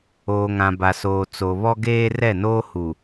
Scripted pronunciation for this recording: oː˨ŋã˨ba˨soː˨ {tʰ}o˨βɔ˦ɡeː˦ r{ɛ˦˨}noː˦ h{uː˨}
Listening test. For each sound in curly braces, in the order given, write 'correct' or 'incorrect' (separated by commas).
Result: incorrect, correct, incorrect